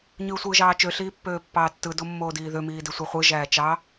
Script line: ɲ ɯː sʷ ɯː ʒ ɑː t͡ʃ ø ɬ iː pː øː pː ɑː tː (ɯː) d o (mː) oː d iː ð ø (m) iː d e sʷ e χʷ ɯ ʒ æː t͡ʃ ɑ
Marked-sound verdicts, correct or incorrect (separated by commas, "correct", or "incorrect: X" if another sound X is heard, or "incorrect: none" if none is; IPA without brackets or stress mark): incorrect: ɯ, correct, correct